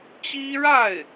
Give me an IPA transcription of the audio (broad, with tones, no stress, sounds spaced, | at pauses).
t͡ɕ i˥ ɻ a˥˩ ɪ̯